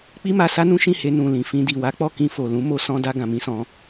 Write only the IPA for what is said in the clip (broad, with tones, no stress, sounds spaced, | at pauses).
k͡p i˦ m a˧ s a˦ n ũ˦ ʃ ĩ˦˨ h e˧ n ũ˨ l ĩ˨ f ĩ˧ d i˨ w a˨˦ k͡p ɔ˦˨ k ĩ˧ f o˨ l ũ˨˦ m o˧ s ɔ̃˧ d a˧ ɡ ã˨ m ĩ˧ s ɔ̃˧